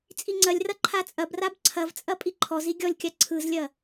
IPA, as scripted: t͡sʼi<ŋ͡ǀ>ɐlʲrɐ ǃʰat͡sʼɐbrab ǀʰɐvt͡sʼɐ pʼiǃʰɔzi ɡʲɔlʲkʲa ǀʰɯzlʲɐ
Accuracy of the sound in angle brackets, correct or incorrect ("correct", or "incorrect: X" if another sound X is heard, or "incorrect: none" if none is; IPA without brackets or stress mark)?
correct